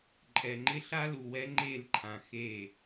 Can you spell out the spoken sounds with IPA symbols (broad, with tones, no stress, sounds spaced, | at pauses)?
ǃʼ ɛ˨ ŋ͡ǃ ɪ˦ ɬ a˦ l u˨ w ɛ˦ ŋ͡ǃ e˦˨ l ǃʰ ã˨ x e˦˨